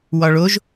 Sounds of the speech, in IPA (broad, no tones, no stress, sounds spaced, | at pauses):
w ɒ ɭ o ʒ